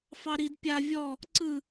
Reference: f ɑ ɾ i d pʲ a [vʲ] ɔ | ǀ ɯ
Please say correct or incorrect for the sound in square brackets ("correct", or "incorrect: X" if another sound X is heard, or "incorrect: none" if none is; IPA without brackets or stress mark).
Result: correct